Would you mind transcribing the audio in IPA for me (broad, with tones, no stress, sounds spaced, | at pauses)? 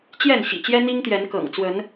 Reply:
t͡ɕ j ɛ˥˨ n ɕ ḭ˨˩ t͡ɕ j ɛ˦ n̪ i˦ ŋ t̪ j ɛ˨˦ n k ɤ̰˨˩ ŋ t͡s w ə˨˦ n